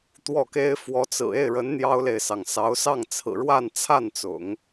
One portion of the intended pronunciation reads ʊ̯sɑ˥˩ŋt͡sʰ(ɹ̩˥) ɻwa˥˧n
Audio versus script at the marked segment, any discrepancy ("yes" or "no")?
yes